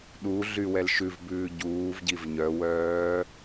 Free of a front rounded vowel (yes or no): no